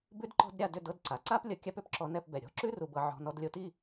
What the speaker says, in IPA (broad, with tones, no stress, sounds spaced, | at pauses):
b ʉ˥ d ǃ ɔ̤˥ d ɾʲ a˥˧ d ʏ˥˧ d ɤ˥˧ d ǀ a˩˧ ǀ a˥ p lʲ ʌ˧ kʲ a˥ p ʏ˥ p ǁ ɔ˧ n ɛ˥˧ p b ɛ˧˩ ɾʲ ɔ̤˥˧ ǁ ʉ˥ r u˧ b ɤ˧ ʕ ɔ̤˧ n ɔ˧ d lʲ o˧ t i˥˧